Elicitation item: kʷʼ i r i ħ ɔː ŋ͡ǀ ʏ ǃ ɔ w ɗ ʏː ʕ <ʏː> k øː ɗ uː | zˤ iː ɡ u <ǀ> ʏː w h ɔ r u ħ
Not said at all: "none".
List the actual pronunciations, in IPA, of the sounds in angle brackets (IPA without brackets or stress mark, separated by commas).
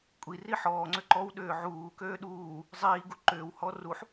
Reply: uː, ǃ